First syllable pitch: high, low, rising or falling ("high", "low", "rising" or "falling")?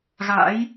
rising